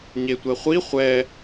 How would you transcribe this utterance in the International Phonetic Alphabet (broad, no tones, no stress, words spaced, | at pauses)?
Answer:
ɲetʷɛχʷi χʷɛ